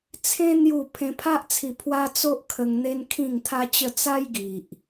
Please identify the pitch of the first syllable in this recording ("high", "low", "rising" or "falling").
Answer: high